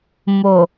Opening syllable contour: low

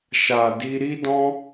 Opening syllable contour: low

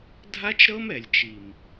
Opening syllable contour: high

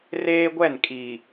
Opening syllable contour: high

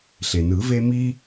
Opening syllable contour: low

